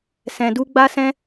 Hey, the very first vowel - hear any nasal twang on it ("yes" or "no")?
yes